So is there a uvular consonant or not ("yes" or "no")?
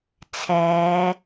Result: no